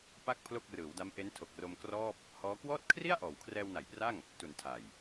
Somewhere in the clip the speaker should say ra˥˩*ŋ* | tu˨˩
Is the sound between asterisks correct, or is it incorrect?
correct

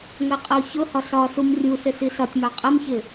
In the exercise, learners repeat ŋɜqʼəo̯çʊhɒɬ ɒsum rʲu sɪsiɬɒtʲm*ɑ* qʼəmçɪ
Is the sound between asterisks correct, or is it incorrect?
correct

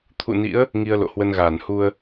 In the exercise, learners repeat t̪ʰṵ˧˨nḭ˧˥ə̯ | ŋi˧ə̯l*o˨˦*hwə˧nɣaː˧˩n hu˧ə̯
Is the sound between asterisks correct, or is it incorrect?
incorrect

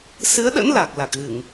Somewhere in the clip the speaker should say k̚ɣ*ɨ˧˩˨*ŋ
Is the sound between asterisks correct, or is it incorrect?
correct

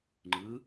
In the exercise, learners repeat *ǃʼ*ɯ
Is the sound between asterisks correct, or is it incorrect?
incorrect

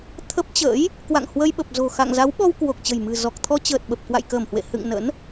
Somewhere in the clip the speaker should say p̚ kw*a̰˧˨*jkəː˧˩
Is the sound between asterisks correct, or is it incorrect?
correct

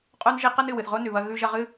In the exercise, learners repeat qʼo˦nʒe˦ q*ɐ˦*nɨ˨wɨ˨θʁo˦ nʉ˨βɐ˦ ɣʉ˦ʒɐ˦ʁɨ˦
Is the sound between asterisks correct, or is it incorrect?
correct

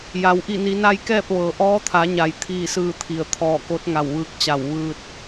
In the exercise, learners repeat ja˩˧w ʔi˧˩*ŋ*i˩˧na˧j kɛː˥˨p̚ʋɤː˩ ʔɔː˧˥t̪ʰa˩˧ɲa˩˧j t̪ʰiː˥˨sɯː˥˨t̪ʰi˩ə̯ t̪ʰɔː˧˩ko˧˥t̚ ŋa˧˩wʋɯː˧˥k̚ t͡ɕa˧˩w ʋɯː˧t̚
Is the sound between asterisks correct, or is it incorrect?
incorrect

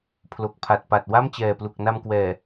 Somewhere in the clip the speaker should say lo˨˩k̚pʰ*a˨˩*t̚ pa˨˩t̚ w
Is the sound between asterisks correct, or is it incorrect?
correct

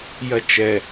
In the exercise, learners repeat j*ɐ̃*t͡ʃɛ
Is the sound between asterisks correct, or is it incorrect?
incorrect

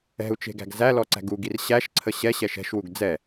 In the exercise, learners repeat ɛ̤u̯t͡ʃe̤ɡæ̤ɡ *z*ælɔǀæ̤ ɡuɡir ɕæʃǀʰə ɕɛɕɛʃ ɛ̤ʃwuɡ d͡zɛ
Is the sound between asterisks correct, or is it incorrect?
correct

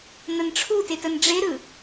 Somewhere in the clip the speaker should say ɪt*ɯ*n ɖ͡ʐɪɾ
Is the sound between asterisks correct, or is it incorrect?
incorrect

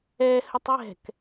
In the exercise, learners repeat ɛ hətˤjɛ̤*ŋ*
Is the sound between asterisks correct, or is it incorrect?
incorrect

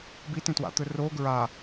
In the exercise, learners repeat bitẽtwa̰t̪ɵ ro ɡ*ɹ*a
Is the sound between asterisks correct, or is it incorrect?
correct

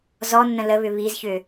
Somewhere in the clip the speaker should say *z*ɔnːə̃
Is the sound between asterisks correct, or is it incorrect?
correct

